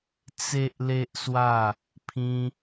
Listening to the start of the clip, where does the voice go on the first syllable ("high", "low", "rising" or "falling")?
high